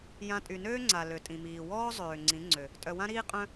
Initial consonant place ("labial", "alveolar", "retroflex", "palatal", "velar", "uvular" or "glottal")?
palatal